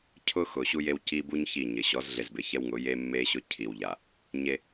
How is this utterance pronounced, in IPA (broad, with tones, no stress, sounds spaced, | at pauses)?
cʰ ʊ˦ x ʊ˨ ɕ u˦ j e˦ w c i˦ b u˦ ɲ ç i˦˨ ɲ ɪ˨ ɕ ɔ˨˦ z ɮ e˨ z b ɪ˨ ç ɛ˦ w ŋ ʊ˨˦ j e˦ mː e˦ ɕ ʊ˦ cʰ i˨ w ʎ a˨ | ɲ e˦